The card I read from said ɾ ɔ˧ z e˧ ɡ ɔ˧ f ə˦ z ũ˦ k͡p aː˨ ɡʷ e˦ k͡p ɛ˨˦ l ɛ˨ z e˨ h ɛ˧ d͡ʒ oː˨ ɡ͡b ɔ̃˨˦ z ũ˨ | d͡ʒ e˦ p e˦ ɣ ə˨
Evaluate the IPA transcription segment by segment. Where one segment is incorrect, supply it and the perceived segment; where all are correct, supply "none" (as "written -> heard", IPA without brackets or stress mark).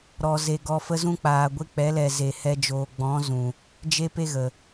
none